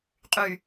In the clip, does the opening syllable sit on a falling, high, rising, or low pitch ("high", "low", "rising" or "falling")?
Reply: low